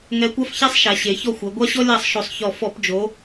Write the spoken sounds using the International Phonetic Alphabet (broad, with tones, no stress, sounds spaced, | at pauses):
ŋ ɛ˧˥ kʷ a˥ f ç ɛ˥ sˤ ʃ a˩˧ ɕ e˩˧ ç ɔ˥˩ xʷ ɛ˩˧ ɡʷ a˥ ɕ ɔ˥ lʲ a˥˩ sˤ ʃ o˧˩˧ sˤ ç ɔ˧˩ f ɔ˧˩˧ p d͡ʒ o˩˧